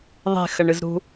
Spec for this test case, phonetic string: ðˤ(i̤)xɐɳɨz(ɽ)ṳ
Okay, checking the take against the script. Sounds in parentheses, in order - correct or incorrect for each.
incorrect, incorrect

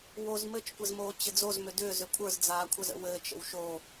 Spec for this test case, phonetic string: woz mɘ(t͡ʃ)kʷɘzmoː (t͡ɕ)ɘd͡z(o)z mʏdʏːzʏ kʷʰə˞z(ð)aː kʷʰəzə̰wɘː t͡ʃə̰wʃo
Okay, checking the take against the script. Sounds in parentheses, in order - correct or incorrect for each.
correct, correct, correct, incorrect

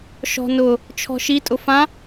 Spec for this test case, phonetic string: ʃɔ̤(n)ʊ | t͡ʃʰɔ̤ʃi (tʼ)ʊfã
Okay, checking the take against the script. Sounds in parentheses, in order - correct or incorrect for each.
correct, correct

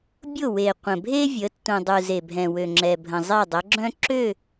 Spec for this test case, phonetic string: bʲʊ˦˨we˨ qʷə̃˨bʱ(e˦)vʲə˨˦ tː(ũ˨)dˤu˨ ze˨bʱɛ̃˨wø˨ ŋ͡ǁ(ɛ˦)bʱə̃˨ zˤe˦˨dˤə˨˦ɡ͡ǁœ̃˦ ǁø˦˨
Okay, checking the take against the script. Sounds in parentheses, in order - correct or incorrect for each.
correct, correct, incorrect

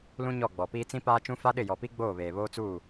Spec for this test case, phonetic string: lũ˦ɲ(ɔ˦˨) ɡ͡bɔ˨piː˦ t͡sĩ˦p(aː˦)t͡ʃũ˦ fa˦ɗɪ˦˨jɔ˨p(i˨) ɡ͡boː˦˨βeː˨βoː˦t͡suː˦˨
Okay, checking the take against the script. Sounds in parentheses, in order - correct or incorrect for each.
correct, correct, incorrect

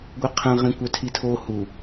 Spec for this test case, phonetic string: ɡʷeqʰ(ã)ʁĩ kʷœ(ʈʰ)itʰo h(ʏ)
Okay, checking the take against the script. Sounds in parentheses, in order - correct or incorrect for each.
incorrect, incorrect, incorrect

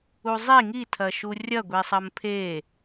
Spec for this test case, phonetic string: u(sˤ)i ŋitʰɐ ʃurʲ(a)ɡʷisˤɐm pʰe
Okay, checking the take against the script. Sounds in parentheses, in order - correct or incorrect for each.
incorrect, incorrect

